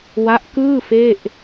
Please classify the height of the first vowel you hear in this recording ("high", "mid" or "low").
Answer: low